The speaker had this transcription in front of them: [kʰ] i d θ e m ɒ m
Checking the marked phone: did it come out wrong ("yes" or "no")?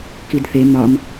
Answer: yes